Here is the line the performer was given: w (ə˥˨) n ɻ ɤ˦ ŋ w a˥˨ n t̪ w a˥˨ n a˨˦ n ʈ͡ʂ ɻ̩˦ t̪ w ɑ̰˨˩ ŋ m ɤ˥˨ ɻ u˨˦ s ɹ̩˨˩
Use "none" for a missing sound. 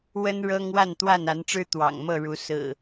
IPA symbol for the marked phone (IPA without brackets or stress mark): ə˦